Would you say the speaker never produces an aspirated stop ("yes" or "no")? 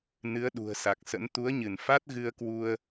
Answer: yes